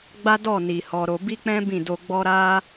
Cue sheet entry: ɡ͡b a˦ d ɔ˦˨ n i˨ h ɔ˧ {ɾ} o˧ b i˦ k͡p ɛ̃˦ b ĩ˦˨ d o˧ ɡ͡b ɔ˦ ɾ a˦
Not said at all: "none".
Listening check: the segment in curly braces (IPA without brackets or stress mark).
ɾ